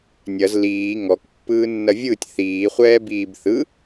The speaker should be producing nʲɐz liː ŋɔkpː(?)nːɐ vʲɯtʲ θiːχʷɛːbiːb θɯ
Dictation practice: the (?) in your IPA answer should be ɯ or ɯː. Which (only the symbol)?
ɯː